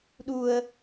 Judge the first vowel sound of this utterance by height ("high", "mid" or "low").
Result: high